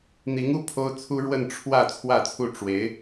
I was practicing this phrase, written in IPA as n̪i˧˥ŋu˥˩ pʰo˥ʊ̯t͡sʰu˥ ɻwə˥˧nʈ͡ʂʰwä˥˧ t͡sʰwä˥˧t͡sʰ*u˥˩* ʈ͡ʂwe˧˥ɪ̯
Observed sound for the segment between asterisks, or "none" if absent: u˥˩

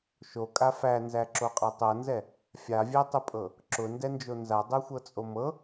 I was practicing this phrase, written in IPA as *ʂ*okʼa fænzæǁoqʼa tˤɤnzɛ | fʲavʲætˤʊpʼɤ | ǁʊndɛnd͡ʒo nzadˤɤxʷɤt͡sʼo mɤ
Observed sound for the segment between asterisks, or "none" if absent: ʃ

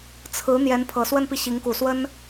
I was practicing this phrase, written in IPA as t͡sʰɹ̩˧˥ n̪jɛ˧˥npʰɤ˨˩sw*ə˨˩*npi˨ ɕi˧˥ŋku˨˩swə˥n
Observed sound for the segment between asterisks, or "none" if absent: ə˥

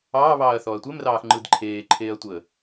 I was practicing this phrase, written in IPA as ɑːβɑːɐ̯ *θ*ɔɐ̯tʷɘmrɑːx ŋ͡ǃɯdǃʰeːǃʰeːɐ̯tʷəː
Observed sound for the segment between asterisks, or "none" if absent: θ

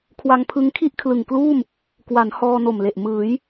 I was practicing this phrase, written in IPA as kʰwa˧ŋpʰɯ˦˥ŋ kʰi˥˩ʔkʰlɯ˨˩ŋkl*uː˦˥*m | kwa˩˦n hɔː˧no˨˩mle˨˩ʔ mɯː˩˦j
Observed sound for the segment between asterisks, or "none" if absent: uː˥˩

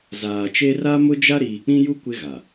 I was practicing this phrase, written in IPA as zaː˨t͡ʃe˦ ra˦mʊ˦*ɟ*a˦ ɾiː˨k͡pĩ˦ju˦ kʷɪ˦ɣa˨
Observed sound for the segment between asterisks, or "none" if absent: d͡ʒ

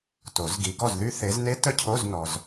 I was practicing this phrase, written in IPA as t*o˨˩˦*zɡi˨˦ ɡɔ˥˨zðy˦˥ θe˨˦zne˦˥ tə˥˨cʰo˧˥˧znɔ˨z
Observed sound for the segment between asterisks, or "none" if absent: o˨˩˦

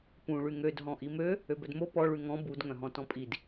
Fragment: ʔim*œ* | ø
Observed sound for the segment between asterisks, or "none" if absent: ø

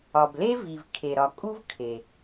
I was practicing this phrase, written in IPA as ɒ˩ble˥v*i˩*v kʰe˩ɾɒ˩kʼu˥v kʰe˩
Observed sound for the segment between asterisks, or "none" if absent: i˩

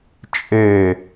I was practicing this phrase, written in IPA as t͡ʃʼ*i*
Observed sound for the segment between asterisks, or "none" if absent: e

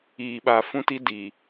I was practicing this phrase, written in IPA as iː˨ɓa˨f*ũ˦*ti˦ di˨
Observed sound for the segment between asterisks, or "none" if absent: ũ˦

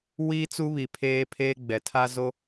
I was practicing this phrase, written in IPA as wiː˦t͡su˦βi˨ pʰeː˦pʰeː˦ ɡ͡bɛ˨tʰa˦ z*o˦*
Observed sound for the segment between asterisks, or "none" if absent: o˦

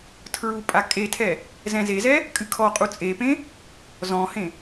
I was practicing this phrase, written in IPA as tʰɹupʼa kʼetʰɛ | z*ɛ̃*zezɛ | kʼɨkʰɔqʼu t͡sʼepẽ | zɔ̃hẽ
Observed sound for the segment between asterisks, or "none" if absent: ɛ̃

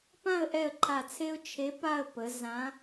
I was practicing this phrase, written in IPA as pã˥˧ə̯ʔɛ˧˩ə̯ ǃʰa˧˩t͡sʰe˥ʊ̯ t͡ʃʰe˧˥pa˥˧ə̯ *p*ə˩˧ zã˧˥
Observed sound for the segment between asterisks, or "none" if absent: p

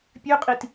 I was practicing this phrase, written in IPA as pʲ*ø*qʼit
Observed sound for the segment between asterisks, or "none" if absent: ø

